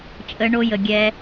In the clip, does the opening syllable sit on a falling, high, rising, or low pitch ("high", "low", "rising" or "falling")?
high